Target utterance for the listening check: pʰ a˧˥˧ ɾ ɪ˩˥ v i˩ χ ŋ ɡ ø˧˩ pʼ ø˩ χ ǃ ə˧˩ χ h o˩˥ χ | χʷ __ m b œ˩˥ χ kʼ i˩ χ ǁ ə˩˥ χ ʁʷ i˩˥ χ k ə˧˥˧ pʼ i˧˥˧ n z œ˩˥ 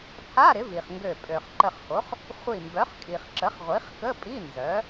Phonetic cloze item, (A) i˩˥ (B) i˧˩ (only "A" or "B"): B